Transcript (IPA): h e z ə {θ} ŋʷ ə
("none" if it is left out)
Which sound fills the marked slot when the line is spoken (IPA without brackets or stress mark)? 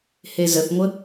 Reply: θ